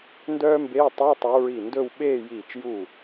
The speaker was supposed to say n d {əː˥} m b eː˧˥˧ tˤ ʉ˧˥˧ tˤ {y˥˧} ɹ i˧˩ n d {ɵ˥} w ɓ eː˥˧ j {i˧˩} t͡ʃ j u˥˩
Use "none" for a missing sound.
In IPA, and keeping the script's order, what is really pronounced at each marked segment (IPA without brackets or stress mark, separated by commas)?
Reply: œː˥, y˨˦, ɵ˥˧, iː˧˩